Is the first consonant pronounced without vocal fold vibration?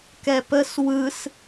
yes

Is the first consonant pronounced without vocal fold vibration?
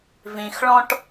no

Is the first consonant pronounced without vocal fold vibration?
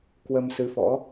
yes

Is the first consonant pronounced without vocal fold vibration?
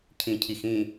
yes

